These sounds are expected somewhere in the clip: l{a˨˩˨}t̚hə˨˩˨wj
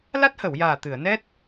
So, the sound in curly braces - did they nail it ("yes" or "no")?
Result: no